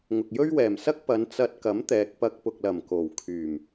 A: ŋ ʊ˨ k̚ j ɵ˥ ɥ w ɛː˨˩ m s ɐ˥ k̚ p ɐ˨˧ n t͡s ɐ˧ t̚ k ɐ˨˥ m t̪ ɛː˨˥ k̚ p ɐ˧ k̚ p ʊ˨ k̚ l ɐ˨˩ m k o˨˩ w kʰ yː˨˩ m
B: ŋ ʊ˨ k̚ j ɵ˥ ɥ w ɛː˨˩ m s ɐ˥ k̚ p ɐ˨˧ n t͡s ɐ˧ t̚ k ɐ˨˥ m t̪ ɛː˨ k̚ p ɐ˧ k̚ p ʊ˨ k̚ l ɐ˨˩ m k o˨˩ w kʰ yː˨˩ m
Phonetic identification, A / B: B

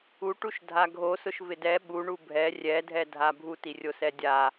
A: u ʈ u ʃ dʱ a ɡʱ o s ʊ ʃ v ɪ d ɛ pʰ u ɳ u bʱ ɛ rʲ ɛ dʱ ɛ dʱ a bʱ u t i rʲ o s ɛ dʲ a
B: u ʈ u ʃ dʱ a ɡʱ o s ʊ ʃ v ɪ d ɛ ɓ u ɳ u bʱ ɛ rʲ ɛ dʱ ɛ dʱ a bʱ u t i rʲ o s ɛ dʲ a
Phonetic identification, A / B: B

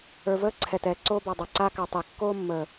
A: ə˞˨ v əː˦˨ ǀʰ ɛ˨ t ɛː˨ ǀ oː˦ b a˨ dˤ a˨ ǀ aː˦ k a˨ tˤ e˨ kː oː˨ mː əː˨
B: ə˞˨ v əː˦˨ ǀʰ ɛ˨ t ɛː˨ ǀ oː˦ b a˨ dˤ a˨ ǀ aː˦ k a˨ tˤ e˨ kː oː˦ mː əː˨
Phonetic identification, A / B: B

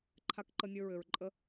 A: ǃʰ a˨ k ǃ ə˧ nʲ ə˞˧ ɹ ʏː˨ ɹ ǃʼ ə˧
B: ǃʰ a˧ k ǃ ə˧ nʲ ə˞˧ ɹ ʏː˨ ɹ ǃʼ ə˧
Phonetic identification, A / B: B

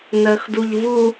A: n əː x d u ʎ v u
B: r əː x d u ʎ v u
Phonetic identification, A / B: A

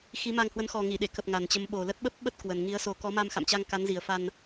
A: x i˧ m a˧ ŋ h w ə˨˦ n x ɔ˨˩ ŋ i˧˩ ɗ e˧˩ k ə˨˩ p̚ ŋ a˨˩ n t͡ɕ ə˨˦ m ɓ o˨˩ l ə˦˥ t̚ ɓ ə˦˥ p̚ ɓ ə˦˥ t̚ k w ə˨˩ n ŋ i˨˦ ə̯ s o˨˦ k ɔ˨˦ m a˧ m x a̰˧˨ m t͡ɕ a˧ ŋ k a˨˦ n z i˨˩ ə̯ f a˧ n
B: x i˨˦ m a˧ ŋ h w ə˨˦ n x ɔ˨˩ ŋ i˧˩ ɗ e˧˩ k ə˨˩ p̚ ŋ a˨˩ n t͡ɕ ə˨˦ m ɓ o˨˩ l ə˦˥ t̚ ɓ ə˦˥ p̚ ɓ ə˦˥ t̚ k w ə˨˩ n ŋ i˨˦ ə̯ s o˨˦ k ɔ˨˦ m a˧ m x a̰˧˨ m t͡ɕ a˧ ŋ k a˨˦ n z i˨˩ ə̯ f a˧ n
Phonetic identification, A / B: B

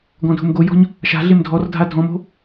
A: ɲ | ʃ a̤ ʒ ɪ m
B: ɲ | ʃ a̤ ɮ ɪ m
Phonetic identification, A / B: B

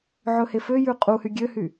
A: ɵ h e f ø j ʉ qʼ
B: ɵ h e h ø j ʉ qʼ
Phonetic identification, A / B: A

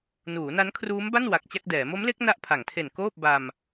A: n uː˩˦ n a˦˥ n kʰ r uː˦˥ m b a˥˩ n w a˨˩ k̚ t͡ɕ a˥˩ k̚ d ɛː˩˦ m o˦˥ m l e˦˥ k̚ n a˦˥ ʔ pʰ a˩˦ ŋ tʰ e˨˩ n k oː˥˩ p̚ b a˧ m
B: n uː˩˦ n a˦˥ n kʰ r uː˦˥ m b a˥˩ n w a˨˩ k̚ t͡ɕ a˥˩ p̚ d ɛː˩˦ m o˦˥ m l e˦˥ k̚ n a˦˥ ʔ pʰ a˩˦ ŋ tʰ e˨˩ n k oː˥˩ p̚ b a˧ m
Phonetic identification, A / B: A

